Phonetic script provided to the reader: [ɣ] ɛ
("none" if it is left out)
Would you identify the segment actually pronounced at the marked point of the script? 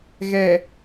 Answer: ɣ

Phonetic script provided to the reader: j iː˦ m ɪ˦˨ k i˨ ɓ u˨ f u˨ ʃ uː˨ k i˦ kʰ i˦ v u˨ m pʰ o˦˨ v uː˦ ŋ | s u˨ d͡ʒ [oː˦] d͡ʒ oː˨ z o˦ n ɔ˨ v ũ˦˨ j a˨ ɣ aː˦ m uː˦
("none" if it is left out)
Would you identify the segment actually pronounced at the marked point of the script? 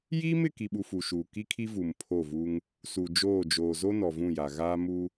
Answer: oː˦˨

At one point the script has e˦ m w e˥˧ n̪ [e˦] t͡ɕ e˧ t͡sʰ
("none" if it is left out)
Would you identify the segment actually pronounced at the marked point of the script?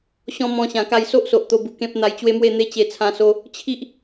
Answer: e˦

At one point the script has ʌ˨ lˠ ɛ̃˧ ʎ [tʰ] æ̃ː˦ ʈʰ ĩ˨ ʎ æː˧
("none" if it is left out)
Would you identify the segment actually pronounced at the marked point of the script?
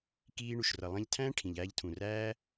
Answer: tʰ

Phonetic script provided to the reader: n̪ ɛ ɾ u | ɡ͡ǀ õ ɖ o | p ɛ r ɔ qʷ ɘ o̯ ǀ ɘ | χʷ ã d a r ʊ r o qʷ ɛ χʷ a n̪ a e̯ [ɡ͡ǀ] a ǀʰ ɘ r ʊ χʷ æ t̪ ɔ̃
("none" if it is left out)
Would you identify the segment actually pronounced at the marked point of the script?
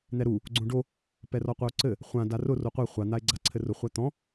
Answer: ɡ͡ǀ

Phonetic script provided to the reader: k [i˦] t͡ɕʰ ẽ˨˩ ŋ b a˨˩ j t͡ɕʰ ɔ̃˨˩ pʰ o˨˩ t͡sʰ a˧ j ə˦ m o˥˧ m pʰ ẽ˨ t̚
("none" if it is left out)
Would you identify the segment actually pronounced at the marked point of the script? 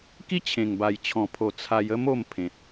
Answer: i˦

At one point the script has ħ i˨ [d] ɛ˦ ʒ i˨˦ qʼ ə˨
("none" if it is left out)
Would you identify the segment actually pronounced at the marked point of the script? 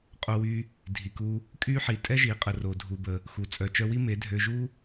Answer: tʼ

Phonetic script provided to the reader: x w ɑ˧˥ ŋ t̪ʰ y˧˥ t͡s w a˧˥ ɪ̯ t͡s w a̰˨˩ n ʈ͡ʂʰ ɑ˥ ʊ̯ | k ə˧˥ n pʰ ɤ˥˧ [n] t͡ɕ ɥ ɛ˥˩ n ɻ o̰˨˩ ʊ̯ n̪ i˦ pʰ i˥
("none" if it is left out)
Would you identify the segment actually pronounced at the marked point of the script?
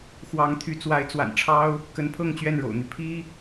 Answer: ŋ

